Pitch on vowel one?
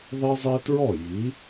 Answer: high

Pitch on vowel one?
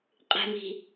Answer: low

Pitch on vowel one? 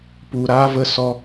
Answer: low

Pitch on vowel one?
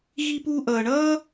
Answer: high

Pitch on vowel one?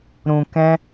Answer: low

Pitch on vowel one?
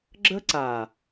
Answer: high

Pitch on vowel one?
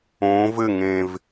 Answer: rising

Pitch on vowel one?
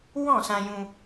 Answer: falling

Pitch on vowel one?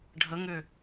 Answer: rising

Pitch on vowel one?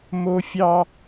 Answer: high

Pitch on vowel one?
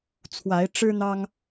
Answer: rising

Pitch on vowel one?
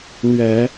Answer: low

